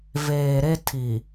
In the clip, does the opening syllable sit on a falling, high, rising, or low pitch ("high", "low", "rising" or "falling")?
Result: low